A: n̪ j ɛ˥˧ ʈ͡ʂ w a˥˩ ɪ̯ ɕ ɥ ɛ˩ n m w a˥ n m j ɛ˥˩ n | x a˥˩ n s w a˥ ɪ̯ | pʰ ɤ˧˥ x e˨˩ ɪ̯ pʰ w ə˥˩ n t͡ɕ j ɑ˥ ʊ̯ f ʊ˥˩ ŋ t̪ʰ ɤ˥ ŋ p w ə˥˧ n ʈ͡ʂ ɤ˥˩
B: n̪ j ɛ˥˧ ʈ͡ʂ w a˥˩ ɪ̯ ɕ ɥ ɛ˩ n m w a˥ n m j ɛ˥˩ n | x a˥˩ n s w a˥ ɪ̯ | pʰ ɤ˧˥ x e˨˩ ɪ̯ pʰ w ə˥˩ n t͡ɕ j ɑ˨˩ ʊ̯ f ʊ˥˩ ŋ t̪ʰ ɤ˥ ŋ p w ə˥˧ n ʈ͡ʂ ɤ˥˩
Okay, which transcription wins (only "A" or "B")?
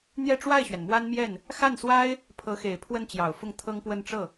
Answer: B